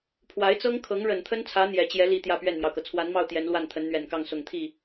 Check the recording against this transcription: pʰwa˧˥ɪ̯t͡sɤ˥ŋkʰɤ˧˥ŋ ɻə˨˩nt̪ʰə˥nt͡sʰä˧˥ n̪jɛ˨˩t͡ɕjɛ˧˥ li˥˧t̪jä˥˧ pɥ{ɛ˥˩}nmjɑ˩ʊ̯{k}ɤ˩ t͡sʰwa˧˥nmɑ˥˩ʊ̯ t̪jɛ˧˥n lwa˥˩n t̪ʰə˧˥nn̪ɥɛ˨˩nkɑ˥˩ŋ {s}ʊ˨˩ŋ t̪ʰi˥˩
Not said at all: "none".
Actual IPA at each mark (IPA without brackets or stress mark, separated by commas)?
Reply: ɛ˥˩, k, s